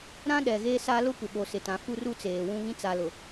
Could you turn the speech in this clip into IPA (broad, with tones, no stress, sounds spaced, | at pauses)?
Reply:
ɾ ã˦ ɗ ɛ˨ ɣ eː˦ s a˦ l ʊ˦ kʷ ɪ˨ ɓ o˨ s ɪ˨ t ã˨ f u˦ r u˦ t͡s eː˨ w ũ˦ β ĩ˦ t͡s a˨ l ʊ˨